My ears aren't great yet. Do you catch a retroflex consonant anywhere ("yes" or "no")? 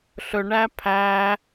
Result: yes